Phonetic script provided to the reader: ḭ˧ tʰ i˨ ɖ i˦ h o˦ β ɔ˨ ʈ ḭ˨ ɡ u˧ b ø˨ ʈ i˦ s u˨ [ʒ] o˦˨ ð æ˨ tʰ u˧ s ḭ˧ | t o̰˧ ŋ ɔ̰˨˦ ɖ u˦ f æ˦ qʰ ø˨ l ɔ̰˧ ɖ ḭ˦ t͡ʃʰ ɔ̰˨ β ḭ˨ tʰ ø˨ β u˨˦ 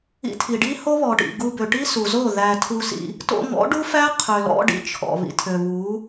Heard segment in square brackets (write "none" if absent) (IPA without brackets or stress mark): z